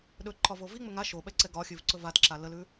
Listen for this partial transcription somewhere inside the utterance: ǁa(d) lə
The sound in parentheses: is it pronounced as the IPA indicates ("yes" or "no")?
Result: no